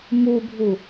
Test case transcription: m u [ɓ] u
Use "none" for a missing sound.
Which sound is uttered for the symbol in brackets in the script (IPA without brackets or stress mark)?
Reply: bʱ